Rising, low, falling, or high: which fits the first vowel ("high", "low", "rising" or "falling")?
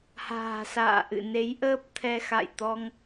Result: low